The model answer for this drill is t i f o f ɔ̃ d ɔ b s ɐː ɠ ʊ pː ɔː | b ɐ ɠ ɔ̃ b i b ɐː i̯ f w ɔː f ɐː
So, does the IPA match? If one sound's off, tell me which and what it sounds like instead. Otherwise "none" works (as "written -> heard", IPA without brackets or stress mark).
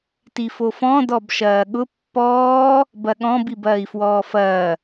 s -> ʃ